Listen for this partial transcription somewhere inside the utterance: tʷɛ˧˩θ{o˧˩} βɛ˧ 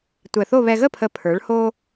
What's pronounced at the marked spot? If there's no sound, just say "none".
o˥˧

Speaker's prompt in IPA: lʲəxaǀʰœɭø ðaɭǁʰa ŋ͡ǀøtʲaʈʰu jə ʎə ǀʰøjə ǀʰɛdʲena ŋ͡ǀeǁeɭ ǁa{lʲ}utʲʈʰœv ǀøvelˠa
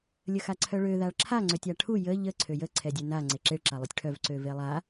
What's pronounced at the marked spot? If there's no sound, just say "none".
lˠ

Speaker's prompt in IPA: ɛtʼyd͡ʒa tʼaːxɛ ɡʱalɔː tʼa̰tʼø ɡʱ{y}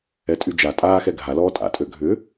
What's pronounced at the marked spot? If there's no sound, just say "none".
ʏ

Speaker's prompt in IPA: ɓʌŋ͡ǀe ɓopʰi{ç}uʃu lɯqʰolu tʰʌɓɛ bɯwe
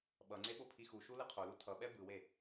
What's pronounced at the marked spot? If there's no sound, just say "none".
x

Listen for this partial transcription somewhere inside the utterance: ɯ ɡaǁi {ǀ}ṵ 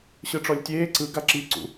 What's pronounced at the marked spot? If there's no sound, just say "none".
ǀ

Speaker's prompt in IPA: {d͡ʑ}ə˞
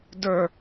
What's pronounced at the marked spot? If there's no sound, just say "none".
d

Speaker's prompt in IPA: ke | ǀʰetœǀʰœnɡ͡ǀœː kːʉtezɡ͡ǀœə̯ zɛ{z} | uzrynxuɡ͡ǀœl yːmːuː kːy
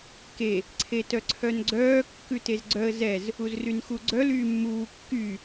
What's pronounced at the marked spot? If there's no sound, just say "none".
z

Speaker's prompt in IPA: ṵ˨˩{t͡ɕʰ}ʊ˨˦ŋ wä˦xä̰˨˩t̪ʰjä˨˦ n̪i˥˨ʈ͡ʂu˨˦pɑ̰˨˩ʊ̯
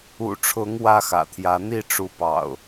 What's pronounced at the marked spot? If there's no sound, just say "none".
ʈ͡ʂʰ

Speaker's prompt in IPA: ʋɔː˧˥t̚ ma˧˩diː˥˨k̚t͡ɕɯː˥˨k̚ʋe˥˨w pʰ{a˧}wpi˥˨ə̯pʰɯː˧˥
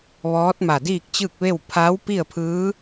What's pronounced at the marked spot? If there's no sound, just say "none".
a˧˥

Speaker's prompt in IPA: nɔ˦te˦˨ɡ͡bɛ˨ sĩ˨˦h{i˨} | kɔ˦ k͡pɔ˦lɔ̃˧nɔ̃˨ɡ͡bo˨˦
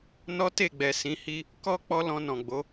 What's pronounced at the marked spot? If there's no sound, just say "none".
i˦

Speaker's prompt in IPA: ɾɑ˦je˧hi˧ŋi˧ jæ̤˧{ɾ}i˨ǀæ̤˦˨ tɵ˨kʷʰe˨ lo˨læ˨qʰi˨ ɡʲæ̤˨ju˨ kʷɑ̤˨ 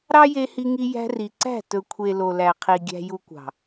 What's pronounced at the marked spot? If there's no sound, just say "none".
r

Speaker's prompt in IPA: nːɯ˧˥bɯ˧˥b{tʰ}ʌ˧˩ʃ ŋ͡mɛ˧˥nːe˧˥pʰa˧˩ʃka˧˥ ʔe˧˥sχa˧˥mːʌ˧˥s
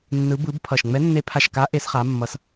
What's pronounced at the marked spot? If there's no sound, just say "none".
pʰ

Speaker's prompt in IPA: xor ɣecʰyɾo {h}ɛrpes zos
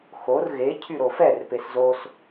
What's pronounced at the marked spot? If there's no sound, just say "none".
f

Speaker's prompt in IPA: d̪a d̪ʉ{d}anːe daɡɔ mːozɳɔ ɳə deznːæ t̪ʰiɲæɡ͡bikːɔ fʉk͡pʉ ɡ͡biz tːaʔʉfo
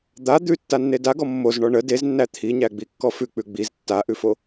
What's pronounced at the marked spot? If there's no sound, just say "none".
tː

